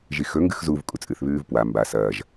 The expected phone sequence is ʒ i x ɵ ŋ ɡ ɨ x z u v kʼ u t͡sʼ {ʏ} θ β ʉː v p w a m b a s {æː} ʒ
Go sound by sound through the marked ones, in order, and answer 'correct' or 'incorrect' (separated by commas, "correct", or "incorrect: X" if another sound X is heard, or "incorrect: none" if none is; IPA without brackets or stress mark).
incorrect: ɨ, incorrect: ɐː